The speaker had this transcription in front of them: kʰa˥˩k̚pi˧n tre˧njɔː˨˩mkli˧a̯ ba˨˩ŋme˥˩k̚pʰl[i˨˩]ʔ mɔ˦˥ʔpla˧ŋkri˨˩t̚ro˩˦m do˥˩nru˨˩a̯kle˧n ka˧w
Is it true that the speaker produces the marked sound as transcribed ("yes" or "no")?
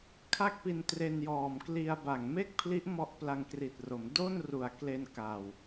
no